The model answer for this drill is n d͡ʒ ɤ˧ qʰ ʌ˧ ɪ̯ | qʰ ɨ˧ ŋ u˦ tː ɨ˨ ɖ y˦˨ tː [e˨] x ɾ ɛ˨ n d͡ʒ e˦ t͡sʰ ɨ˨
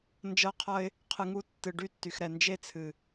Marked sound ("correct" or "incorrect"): incorrect